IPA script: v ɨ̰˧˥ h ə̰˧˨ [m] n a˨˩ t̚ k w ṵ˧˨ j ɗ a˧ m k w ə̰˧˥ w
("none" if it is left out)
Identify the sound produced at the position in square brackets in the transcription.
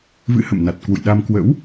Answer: m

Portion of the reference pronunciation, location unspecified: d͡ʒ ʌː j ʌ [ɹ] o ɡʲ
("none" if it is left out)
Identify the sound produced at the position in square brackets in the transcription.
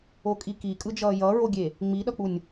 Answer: ɹ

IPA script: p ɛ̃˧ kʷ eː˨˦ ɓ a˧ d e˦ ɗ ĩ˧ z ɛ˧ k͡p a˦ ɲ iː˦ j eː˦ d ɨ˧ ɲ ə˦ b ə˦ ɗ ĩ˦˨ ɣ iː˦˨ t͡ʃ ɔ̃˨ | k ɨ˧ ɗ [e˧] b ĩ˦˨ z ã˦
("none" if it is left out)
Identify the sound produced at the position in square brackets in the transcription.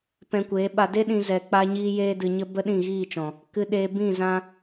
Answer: eː˧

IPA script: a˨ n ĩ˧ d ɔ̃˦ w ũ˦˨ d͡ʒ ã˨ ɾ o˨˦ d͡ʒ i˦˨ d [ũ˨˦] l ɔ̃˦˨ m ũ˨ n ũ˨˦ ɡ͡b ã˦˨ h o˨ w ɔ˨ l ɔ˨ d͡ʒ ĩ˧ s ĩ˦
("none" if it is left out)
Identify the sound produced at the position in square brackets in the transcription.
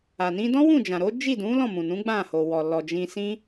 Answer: ũ˨˦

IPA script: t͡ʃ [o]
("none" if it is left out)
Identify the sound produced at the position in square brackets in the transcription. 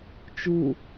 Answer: u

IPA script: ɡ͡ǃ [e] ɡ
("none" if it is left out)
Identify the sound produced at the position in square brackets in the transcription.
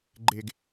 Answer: e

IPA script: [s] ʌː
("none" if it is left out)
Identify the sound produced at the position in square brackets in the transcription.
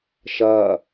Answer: ʃ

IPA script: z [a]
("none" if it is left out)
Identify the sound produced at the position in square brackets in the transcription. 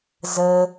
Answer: ə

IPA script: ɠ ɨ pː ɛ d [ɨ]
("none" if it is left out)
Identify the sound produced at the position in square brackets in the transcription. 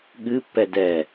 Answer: ɛ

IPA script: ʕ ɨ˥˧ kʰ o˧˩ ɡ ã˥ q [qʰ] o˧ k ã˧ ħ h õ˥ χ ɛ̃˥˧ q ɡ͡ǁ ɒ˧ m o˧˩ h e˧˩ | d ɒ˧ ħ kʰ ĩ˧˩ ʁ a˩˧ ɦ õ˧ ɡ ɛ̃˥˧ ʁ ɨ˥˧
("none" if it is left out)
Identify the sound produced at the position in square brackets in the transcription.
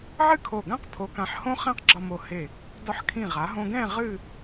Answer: pʰ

